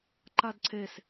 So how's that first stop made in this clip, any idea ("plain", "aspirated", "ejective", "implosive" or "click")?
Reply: click